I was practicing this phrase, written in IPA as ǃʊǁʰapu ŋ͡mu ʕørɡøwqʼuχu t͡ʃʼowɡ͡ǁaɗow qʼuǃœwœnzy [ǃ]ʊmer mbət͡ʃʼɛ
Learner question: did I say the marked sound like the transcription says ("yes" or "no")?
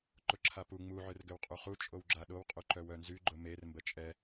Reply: no